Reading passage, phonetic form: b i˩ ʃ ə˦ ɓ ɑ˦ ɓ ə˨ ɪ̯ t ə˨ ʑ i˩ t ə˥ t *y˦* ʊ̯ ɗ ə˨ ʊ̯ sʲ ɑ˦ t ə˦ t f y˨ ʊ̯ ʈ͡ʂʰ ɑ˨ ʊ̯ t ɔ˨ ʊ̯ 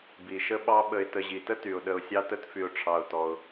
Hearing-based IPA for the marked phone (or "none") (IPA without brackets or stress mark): y˩